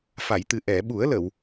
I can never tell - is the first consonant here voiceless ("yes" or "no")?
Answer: yes